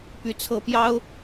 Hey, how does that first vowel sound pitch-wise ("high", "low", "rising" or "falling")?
high